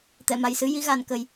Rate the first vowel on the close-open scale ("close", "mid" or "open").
mid